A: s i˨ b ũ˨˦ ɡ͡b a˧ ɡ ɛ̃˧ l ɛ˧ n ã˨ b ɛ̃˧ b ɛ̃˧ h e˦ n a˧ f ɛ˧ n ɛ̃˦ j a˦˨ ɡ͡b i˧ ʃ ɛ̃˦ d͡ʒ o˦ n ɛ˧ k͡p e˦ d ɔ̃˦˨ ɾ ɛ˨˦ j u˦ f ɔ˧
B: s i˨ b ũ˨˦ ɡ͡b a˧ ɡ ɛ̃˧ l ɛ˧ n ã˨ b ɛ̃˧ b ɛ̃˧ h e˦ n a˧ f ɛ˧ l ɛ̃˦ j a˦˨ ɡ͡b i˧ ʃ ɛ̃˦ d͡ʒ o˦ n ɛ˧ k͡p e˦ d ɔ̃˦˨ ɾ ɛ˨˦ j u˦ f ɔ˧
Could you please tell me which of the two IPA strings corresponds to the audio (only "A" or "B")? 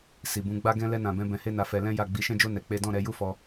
B